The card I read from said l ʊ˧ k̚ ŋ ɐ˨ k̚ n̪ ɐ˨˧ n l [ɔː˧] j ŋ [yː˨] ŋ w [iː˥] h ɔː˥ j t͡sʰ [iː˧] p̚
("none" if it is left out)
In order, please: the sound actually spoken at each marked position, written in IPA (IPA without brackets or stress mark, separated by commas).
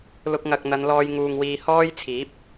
ɔː˧, uː˨, iː˨, iː˨˥